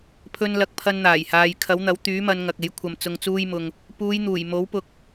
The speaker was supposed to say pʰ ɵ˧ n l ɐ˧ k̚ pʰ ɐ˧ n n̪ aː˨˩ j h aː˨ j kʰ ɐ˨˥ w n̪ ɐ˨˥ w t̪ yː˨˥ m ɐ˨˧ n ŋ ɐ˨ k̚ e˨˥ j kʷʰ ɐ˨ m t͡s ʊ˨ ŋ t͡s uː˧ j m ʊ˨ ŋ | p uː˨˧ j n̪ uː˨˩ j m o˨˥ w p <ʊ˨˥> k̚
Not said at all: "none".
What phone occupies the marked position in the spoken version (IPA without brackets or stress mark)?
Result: ʊ˨˥